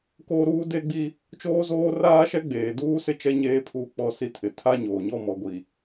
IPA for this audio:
k oː˦ ɾ uː˦ d e˦ ɡ͡b i˦ | t͡ʃ oː˦ z oː˦ r aː˦ ʃ ɛ˦ ɡ͡b eː˨ d uː˦ s ɪ˦ t͡ʃ ɛ˦ ɲ eː˦ pʰ uː˦ k͡p ɔ˦˨ s i˦ tʰ ɪ˨ tʰ a˦ ɲ oː˨ ɲ ɔ˦˨ m ɔ˨ ɡʷ i˨

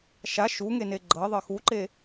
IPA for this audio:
ʃ a ʃ u ŋ e n e ɡ͡ǃ ɤ ðˤ ɤ x u ǃ e

